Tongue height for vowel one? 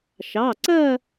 low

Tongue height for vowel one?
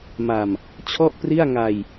low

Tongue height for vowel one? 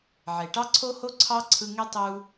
mid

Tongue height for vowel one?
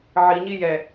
high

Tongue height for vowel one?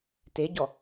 mid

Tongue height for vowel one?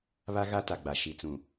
low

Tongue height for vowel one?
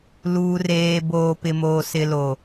high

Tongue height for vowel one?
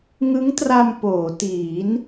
high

